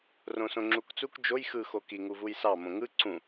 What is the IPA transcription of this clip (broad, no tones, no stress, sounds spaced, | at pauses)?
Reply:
r õ s õ ŋ͡ǁ u k t͡s u k d͡ʒ o j x ɯ x o k i ŋ u v u j s ɑ m õ ŋ ɯ ǀ ũ